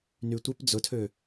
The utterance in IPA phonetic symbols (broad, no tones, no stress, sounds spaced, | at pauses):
n y tʷ e p d͡z ʊ tʰ ø